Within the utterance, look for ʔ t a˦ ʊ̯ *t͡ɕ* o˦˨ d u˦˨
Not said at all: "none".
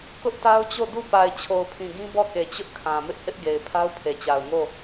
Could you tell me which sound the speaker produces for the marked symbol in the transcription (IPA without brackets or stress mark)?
t͡ɕ